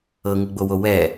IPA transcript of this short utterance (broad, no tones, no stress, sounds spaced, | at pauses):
ɤ ŋ u ɡ͡b o w o w ɛ